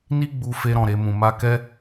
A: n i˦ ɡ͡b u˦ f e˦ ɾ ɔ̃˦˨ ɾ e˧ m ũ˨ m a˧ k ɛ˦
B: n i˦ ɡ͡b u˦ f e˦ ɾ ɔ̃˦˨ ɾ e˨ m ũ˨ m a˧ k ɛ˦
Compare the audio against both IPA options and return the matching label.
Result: A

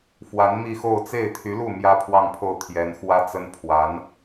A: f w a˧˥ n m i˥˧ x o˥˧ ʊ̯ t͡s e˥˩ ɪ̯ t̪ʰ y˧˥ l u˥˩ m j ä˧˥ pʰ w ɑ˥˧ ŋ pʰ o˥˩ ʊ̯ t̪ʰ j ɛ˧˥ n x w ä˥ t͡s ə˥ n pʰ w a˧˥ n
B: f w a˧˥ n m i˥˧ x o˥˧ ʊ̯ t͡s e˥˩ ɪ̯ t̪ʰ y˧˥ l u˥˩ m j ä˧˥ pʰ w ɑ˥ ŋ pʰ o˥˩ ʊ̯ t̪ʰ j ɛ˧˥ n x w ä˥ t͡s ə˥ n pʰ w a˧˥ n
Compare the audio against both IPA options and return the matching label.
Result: A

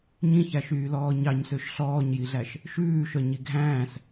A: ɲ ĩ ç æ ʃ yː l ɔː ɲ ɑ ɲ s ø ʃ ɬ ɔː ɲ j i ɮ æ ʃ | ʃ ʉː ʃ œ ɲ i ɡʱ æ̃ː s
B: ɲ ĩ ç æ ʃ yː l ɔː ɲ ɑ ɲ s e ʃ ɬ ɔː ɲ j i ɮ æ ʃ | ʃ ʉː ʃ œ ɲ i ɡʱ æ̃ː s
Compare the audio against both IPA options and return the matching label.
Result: A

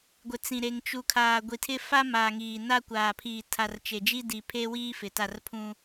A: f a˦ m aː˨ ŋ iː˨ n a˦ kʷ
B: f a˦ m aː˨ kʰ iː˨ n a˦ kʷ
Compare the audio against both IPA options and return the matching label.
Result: A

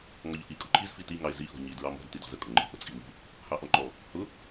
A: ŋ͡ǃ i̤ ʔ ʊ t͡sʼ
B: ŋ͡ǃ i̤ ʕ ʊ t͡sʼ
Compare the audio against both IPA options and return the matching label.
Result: A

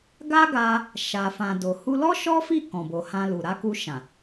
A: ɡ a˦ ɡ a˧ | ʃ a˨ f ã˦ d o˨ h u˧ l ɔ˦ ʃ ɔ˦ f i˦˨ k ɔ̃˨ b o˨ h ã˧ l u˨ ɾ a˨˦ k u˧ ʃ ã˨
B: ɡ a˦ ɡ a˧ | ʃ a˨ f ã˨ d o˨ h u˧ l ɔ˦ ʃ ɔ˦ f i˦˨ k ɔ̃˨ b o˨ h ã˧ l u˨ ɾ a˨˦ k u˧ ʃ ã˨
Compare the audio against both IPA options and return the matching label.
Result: B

